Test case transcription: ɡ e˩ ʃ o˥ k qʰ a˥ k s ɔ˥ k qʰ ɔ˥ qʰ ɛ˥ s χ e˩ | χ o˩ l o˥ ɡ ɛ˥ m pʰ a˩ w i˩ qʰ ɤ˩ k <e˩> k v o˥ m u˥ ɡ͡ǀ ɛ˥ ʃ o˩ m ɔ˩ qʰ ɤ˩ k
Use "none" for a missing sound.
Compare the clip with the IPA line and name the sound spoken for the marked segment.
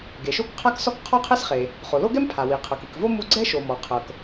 i˩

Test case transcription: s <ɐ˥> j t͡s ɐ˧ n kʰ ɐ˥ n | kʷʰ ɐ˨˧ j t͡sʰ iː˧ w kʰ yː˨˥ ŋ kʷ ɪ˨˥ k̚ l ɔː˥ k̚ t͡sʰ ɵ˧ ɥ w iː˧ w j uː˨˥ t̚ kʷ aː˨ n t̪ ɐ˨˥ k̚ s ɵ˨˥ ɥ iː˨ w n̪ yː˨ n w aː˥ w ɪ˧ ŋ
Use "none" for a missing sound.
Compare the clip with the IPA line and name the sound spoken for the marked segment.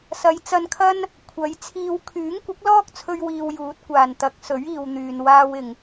ɐ˨˧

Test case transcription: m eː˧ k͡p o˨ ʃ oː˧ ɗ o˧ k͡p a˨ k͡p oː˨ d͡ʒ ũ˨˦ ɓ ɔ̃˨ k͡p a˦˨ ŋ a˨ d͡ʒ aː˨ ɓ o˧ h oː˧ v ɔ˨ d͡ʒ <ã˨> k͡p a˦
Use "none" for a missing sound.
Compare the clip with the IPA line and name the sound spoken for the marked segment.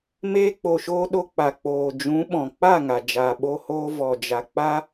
a˨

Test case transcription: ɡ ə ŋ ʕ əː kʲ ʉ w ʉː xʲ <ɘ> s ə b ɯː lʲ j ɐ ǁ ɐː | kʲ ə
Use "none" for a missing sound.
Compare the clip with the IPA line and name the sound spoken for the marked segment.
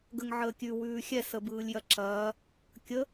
ɛ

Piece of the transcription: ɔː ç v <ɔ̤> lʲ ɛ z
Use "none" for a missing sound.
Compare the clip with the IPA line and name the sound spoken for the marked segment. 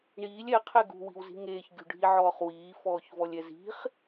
ɔ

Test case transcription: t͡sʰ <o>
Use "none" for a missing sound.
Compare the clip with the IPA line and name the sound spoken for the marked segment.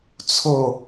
o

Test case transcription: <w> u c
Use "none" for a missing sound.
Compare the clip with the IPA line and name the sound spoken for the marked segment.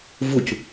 v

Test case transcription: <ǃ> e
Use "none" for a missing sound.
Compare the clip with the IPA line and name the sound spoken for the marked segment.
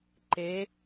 ǃ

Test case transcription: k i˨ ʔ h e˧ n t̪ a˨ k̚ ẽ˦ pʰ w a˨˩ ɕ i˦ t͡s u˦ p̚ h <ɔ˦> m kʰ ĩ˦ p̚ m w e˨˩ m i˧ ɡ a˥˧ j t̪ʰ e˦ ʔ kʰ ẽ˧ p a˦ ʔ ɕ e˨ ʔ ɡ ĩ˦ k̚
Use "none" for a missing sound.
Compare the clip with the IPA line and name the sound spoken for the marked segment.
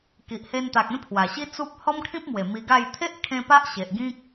ɔ˦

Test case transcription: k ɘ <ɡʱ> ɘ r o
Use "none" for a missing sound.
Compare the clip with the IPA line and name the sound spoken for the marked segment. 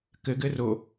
ɡ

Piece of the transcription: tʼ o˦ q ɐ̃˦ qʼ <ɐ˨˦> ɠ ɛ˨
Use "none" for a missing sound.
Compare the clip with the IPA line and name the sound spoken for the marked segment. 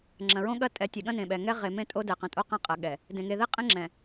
ɐ˨˦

